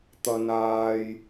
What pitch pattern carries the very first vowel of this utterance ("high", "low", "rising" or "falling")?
low